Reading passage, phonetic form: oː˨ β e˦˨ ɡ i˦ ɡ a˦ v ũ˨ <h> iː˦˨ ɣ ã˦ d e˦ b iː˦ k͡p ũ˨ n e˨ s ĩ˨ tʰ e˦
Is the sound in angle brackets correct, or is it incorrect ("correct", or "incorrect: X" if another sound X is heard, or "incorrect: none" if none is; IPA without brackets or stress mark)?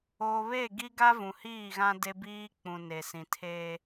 correct